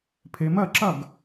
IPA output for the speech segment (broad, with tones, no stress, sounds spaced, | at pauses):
pʰ e˩˧ m ɜ˥˩ ǁ ɐ˥˩ ɡ